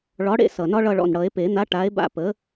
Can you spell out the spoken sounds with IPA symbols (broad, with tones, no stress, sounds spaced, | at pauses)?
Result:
ɭ ɒ˨˥ ɽ ḛ˦˨ s ʌ˨˩ n ɒ˦ ɭ ʌ˦˨ ɭ ɔ̰˨˩ n ɽ ʌ˨˩˦ e̯ p e˨˩˦ n̪ a˨˥ ʈ a˨˥ e̯ b a̰˦˨ p ə˨˥